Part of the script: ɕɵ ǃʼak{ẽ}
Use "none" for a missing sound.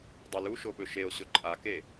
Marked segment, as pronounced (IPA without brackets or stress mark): e